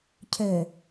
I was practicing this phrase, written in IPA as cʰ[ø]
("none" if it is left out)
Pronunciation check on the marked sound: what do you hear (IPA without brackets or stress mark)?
ø